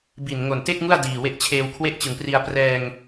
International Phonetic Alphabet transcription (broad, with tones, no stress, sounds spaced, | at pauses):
b i˨˩ n ŋ o˨˩ n t e˥˩ k̚ ŋ u˥˩ a̯ d iː˨˩ w e˦˥ ʔ t͡ɕʰ eː˧ w kʰ w e˥˩ ʔ t͡ɕ ɯ˨˩ ŋ p r i˧ a̯ p r ɛː˧ ŋ